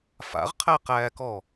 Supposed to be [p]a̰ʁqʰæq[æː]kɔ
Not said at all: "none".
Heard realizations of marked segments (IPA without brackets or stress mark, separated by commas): f, æː